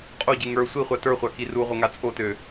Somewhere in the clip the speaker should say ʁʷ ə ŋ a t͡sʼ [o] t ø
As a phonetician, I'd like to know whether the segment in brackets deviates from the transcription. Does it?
no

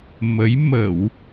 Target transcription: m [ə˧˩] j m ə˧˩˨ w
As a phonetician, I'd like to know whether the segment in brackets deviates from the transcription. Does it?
yes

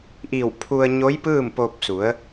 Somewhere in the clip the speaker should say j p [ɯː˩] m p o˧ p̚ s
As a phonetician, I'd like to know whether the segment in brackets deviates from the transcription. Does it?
yes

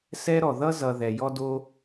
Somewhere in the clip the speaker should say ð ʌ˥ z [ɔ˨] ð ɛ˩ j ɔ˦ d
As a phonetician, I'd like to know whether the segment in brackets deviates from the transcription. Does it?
yes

